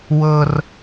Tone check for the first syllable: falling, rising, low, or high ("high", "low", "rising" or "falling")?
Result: high